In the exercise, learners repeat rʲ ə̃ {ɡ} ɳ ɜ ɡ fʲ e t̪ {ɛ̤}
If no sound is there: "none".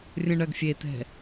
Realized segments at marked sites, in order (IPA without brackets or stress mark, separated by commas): none, ɛ̤